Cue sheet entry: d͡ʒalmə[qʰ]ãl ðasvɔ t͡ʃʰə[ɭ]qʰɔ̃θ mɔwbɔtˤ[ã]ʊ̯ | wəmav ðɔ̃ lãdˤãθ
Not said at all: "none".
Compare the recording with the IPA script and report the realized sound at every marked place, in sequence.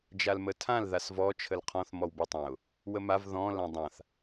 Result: tʰ, l, ã

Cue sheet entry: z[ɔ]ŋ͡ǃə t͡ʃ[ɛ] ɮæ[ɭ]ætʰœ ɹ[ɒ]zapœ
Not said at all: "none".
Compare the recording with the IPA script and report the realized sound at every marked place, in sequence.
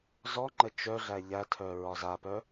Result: ɔ, œ, ʎ, ɒ

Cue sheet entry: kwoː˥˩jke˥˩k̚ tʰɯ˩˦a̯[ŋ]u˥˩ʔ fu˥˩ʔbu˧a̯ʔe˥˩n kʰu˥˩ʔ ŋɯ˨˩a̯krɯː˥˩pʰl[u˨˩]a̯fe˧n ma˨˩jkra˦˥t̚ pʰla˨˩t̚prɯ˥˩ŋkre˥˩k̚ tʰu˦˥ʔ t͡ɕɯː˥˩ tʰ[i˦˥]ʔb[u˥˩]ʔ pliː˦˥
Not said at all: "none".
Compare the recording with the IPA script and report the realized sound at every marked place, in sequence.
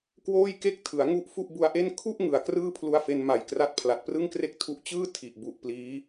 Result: ŋ, u˧, i˨˩, u˨˩

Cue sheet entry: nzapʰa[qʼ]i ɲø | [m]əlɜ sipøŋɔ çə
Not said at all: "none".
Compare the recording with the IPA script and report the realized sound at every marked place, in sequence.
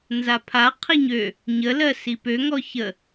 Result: qʰ, ɲ

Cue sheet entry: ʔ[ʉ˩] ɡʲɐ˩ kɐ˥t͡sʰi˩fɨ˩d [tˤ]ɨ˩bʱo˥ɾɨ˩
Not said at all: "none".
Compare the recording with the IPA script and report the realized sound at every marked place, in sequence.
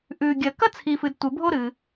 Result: ʉ˩, tʷ

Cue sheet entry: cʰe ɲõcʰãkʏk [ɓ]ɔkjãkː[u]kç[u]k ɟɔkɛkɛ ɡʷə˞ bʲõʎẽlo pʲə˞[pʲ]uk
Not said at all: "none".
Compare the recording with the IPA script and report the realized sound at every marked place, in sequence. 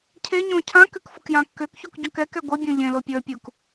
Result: f, ʏ, u, pʲ

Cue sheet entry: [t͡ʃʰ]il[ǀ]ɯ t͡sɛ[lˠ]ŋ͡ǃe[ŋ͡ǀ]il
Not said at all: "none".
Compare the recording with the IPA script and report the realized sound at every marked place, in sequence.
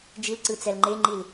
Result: d͡ʒ, ǀ, l, ŋ͡ǃ

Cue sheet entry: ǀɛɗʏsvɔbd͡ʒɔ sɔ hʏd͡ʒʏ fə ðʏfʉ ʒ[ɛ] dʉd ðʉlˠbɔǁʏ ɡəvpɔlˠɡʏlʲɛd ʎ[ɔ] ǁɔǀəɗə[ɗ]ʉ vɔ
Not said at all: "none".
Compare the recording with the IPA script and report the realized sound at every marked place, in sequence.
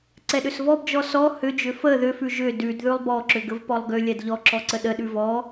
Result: ʏ, ɔ, ɗ

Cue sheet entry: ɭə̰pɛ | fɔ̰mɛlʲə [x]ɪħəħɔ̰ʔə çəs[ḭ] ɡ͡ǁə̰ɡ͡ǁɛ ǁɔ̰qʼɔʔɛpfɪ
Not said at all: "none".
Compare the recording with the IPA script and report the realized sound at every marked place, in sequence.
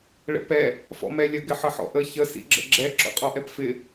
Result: ɡ, ḭ

